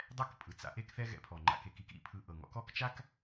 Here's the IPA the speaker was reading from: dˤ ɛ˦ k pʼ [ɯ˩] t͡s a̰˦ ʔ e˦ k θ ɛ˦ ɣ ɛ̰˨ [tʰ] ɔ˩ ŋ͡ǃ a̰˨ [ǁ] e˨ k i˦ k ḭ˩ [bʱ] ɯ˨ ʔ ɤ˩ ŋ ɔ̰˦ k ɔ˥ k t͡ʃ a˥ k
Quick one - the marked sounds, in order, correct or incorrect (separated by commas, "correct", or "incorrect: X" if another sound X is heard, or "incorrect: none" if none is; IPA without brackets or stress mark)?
correct, incorrect: pʰ, incorrect: k, incorrect: pʰ